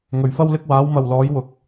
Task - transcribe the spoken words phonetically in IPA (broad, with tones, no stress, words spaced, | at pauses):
ŋɵ˨˩ɥfɐ˥wlɪ˥k̚ waː˨˥wmɐ˨wlɔː˨˥j wʊ˨k̚